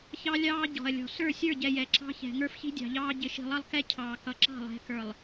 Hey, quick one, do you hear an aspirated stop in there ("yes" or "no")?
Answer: yes